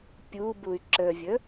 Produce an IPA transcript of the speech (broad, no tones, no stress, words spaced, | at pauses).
pʲubuy̯ ǁəvʲə